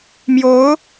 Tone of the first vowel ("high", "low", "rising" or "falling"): rising